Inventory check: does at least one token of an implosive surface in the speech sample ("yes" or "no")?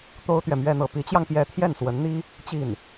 no